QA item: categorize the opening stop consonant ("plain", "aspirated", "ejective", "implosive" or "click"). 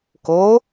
plain